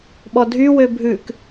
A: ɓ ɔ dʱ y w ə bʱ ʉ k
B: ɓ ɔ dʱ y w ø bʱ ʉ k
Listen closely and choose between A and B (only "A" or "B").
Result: B